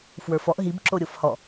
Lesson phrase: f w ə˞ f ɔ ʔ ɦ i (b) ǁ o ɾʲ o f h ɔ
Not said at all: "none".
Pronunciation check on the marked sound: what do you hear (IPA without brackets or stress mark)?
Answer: b